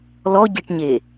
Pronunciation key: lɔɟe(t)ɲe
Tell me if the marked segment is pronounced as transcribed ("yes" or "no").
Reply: no